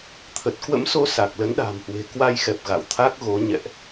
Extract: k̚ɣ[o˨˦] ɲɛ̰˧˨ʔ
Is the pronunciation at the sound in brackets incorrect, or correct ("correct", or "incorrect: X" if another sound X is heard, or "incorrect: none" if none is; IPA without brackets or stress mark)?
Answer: correct